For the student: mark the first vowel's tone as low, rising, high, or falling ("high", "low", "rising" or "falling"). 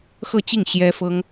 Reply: falling